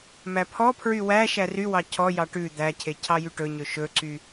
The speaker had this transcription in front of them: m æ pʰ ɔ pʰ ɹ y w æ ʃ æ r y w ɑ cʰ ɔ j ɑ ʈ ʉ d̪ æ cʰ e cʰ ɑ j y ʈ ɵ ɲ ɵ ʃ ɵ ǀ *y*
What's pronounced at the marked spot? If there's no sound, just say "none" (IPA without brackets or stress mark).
y